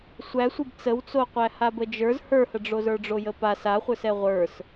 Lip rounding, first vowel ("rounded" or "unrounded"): unrounded